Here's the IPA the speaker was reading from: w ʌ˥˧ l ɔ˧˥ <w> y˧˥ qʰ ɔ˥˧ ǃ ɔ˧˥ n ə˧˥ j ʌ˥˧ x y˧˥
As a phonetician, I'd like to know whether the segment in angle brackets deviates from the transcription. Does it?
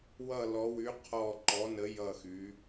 no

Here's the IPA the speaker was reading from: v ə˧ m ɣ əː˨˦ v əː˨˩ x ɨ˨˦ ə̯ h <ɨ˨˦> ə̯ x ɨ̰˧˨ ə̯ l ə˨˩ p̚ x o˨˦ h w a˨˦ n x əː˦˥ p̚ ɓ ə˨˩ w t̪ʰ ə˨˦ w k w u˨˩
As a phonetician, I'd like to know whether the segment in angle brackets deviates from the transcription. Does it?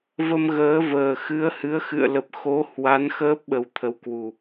no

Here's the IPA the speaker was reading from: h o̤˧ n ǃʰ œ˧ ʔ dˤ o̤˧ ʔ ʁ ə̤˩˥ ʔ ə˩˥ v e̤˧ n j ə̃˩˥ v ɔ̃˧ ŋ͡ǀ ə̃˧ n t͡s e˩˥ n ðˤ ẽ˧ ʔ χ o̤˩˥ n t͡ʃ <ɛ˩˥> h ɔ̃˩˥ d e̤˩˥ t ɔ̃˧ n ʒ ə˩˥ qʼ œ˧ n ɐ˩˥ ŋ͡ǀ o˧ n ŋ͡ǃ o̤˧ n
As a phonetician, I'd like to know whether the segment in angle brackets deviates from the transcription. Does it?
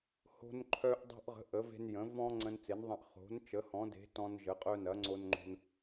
yes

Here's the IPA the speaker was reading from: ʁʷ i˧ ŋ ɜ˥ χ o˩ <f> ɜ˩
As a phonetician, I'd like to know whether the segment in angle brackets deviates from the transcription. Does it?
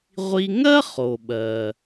yes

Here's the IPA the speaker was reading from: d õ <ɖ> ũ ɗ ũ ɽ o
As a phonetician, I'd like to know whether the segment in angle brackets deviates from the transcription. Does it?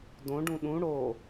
no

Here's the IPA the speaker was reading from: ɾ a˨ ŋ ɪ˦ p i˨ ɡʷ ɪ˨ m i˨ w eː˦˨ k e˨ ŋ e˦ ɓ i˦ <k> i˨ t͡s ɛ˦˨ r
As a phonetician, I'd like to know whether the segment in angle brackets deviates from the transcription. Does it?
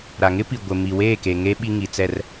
yes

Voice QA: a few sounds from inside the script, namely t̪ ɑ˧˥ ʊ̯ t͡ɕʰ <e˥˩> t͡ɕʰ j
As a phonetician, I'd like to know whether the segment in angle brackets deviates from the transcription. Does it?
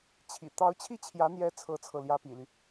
yes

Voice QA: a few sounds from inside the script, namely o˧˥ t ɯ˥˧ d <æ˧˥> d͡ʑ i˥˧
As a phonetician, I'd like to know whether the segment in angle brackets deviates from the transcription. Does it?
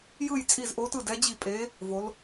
yes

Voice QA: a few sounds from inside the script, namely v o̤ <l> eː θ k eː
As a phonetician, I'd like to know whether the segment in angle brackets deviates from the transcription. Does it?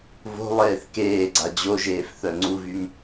yes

